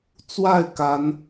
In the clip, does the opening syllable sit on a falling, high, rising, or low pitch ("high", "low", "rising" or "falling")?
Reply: falling